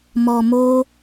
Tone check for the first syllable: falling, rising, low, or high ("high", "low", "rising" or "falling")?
low